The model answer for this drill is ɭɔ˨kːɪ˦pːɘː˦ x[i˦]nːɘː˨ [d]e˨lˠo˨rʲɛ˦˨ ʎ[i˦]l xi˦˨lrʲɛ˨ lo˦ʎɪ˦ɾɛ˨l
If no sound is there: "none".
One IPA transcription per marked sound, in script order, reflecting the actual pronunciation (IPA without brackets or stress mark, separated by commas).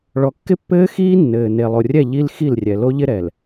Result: iː˦, n, i˦